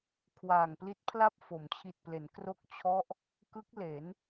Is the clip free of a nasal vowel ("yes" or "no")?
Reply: yes